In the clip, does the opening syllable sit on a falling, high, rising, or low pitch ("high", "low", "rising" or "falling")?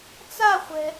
falling